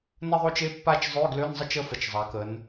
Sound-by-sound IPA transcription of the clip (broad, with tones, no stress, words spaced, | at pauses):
nə˥˧ðˤo˥˧t͡ʃe˧˥˧pːa˥˧t͡ʃ zˤø˧˥˧ɡlø˧˥˧nzˤə˥˧t͡ʃ ə˥˧fə˨˩t͡ʃ zˤa˩˧kə˩˧n